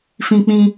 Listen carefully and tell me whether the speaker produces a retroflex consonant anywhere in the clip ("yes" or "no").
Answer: no